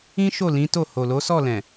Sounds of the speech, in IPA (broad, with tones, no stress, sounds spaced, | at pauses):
ĩ˦ ʃ o˦˨ l ĩ˨˦ t o˦˨ h o˨ l o˨˦ s ɔ˦˨ l ɛ̃˨